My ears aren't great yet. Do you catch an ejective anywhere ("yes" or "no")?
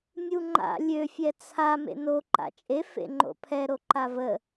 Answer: yes